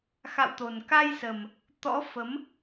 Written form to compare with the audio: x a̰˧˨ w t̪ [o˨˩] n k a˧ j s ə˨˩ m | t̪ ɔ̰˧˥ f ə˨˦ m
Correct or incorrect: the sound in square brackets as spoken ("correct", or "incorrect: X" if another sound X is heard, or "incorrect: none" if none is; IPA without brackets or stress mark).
correct